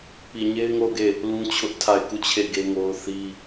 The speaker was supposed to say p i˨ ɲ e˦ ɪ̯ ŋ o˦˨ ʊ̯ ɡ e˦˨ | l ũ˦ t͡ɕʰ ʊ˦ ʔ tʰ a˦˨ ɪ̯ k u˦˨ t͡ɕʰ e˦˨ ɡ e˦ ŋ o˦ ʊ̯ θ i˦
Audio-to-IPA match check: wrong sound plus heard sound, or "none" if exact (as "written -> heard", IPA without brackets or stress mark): none